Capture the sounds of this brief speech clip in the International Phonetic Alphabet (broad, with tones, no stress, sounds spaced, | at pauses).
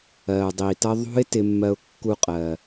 ɜ˩ ʊ̯ dˤ i˩ t ʌ˦ ðˤ ṳ˥ ɪ̯ t ɪ˦ mː ɜ˦ ʊ̯ kː u˦ qʼ ɜ˩